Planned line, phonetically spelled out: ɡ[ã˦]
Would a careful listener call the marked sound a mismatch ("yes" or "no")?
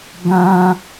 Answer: no